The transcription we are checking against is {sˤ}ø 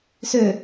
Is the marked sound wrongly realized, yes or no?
yes